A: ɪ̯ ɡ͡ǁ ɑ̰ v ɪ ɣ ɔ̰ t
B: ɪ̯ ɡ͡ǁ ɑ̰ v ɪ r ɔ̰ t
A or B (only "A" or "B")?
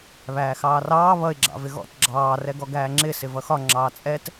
A